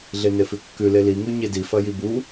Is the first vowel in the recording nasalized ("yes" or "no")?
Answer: no